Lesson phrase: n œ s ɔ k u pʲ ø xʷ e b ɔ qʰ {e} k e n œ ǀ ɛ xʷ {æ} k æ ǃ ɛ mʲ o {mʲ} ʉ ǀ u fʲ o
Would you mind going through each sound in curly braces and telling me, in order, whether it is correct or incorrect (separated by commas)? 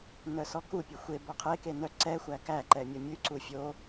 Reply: correct, correct, correct